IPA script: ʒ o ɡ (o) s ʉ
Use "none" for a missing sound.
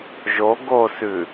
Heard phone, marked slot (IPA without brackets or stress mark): o